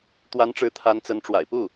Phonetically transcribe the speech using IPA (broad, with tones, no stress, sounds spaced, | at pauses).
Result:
t̪ w a˧˥ n ʈ͡ʂ ɻ̩˧˥ t̪ʰ a˧˥ n t͡s ə˧˥ n ʈ͡ʂ w a̰˨˩ ɪ̯ p u˥˩